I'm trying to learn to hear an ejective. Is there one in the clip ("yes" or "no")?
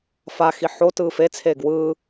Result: no